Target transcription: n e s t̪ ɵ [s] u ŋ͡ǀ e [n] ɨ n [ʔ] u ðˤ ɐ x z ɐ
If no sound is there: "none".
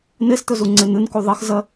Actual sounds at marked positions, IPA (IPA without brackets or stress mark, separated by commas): z, n, k